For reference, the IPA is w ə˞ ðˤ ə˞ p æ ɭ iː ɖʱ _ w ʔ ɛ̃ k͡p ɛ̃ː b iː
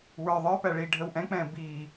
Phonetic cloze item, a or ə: ə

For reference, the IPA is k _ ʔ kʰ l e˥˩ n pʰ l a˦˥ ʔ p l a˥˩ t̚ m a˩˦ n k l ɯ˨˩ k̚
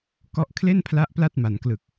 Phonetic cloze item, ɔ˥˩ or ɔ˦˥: ɔ˥˩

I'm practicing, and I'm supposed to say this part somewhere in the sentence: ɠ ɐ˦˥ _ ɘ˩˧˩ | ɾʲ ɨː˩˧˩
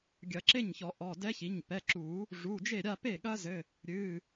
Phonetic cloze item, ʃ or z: z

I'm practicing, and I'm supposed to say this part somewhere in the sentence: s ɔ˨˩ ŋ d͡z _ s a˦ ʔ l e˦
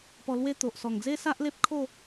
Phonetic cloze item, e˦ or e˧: e˦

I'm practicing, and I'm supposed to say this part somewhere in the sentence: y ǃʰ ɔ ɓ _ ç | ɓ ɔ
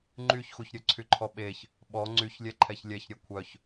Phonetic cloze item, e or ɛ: e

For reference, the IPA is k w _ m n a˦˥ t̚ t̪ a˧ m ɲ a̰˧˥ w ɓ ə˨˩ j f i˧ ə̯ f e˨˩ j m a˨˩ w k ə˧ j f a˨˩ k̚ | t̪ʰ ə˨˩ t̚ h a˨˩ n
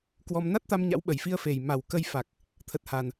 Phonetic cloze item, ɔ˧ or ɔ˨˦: ɔ˧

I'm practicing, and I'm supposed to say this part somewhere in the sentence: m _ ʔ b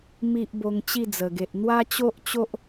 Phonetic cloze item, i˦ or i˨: i˨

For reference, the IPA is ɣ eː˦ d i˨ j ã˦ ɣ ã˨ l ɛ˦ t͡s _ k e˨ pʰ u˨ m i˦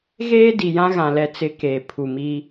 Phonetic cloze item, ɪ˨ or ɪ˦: ɪ˦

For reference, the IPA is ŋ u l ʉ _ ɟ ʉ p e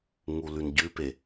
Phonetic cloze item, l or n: n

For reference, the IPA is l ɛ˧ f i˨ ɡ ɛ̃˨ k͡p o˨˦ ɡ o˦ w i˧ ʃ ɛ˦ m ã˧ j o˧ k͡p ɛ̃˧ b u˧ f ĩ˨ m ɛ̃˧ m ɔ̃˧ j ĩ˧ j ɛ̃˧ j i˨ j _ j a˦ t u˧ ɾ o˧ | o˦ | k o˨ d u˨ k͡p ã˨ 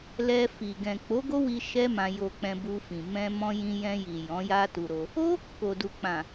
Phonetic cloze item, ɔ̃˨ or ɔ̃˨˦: ɔ̃˨˦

